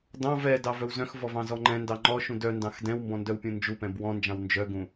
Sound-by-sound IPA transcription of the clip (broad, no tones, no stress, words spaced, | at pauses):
dɑ̃ vɛdɑ vœwzœ̃xvɔ vɑ̃zɔŋ͡ǃɛ̃ndɑ ŋ͡ǃɔ ʃũdœndɑ̃x dɛ̃wmbɔ̃ ndœwpʲũnd͡ʒupɛ̃b wɔ̃nd͡ʒɑ̃w nd͡ʒœɡũ